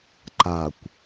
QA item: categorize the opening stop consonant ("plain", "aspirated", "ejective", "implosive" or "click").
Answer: click